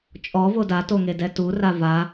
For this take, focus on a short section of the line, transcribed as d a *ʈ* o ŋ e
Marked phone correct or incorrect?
incorrect